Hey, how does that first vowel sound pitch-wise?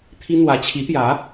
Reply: high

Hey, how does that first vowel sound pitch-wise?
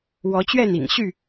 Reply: rising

